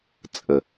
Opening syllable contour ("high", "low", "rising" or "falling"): low